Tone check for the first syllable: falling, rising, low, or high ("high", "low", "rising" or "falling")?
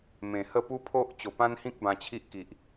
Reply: low